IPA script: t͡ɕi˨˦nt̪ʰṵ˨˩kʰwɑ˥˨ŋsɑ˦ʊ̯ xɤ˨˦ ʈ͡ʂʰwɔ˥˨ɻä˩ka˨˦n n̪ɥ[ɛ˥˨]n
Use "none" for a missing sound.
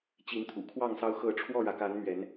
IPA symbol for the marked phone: ɛ˨˦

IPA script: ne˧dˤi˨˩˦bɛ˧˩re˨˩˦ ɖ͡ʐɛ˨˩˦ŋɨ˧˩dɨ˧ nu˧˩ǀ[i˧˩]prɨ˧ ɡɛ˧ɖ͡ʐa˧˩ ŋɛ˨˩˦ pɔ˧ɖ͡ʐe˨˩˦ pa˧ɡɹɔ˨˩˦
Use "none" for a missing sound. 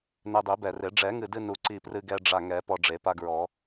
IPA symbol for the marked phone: i˧˩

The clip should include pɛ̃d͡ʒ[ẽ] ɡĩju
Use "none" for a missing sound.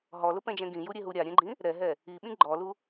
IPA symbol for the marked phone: ɛ̃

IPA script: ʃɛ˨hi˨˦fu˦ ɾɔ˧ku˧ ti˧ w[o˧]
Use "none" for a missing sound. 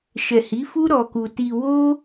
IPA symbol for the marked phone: o˦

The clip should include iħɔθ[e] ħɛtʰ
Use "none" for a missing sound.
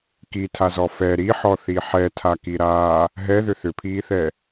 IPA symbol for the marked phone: i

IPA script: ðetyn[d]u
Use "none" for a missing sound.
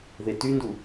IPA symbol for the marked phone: d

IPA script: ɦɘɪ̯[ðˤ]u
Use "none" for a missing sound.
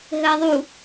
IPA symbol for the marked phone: ðˤ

